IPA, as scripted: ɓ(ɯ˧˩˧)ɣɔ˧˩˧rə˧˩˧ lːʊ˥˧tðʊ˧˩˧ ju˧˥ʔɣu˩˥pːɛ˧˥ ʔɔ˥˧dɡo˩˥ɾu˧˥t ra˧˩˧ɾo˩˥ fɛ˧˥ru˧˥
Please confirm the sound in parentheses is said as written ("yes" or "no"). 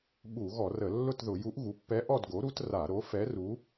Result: no